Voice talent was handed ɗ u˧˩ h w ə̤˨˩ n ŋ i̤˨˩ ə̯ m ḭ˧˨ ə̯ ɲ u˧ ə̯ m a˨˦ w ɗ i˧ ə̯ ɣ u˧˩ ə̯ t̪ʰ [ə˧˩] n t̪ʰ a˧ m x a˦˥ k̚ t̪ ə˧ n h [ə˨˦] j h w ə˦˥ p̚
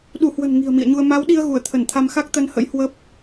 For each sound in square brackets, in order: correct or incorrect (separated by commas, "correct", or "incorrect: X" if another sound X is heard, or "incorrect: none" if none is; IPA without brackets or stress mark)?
correct, incorrect: ə̰˧˥